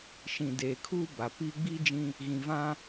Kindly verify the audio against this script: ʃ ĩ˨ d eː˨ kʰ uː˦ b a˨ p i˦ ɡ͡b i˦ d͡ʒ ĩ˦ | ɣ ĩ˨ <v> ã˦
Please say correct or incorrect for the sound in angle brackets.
correct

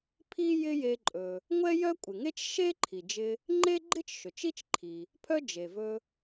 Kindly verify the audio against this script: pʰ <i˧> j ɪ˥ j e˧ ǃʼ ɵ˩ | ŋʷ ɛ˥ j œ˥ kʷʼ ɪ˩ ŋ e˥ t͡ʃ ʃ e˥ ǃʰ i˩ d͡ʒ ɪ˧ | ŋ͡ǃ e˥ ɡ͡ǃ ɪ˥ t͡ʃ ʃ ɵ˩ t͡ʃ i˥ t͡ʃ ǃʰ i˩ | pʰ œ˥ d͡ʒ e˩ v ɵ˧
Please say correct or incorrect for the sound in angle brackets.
incorrect: i˥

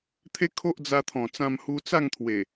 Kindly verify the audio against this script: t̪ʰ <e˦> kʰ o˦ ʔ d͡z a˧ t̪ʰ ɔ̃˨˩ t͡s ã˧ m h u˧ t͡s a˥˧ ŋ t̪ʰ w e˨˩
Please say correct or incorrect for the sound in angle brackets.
correct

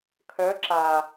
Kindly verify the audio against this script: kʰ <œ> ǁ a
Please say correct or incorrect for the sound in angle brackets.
correct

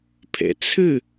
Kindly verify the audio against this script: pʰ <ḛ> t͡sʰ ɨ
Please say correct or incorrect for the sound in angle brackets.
correct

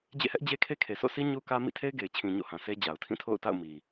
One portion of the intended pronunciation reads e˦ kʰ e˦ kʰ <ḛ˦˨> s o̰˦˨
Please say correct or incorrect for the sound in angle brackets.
incorrect: e˨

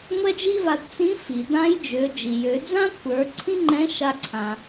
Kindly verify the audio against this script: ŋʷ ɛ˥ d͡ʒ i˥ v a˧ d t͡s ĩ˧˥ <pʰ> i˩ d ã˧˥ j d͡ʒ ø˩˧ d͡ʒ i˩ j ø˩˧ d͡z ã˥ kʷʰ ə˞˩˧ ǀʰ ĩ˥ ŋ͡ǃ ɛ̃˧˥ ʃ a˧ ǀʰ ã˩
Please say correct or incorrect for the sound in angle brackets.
incorrect: f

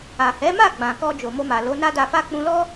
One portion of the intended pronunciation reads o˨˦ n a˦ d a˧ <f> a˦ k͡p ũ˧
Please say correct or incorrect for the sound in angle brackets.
correct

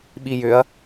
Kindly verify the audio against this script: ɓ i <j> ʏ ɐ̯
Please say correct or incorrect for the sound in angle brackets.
correct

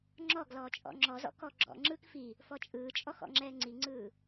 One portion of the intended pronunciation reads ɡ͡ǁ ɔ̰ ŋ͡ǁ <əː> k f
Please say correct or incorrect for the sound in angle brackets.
incorrect: ɯː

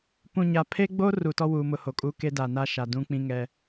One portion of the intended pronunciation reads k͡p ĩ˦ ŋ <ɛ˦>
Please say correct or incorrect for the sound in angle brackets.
correct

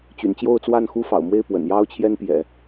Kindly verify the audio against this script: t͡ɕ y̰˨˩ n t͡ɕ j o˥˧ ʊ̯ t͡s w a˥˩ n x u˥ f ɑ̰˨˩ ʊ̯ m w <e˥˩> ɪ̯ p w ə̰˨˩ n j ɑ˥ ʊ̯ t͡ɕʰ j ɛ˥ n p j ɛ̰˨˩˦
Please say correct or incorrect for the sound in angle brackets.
correct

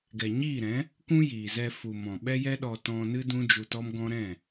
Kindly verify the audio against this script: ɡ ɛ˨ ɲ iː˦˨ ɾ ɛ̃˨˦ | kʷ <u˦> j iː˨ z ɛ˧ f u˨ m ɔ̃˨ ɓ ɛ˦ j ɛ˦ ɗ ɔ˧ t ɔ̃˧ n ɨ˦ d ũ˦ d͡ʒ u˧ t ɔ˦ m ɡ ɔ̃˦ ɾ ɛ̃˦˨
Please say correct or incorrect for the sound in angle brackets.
incorrect: ũ˦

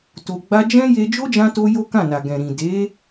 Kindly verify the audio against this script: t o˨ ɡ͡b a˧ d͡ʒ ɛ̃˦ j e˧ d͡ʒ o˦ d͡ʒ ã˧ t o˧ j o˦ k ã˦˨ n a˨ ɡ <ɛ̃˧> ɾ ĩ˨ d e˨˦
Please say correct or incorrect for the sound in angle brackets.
incorrect: ɛ̃˨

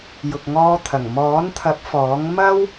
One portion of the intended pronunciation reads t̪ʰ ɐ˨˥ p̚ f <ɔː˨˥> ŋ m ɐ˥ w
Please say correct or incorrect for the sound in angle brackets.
correct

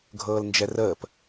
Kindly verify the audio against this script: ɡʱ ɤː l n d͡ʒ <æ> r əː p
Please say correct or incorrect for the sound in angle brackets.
incorrect: ɛ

